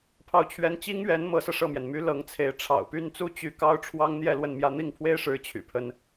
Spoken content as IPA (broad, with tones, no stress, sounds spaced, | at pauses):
pʰ ɑ˥˩ ʊ̯ t͡ɕʰ ɥ ɛ˥ n t͡ɕ i˥ ŋ ɥ ɛ˧˥ n m ɤ˧˥ s ɤ˧ ʂ ɤ˥˩ m j ɛ˩ n m y˥ l ɤ˧˥ ŋ t͡sʰ e˧˥ ɪ̯ ʈ͡ʂʰ ɑ̰˨˩ ʊ̯ p y˥˧ n t͡s u˥˧ t͡ɕ y˥˩ k ɑ˥ ʊ̯ ʈ͡ʂʰ w ɑ˥ ŋ n̪ j ɛ˥˧ l w ə˥˧ n m j ä˥˧ n̪ i˥˩ ŋ pʰ w e˥ ɪ̯ ʂ ɻ̩˧˥ t͡ɕʰ y̰˨˩ pʰ ə˥ n